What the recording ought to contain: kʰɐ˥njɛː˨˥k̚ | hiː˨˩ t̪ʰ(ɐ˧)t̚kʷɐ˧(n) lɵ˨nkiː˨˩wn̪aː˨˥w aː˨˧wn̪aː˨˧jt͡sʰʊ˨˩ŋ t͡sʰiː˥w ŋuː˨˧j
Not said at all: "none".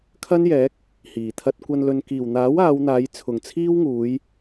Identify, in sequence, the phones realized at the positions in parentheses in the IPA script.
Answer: ɐ˧, n

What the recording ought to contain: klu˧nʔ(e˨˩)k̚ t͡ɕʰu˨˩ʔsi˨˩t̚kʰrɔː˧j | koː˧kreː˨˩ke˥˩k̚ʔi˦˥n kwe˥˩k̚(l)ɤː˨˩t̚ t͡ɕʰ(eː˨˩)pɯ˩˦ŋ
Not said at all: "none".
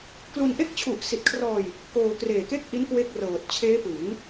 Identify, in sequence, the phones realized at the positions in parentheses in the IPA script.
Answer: e˥˩, r, eː˦˥

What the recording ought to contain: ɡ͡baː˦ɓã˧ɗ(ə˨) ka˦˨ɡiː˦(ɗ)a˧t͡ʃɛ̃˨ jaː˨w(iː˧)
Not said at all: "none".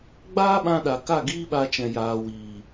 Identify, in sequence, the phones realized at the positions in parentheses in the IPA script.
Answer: a˨, ɓ, iː˨

